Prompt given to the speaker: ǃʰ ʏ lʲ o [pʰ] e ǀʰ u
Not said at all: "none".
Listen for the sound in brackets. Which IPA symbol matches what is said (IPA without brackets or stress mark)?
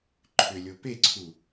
p